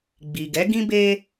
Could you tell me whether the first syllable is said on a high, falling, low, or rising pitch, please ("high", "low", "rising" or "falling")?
low